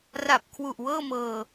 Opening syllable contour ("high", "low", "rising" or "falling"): low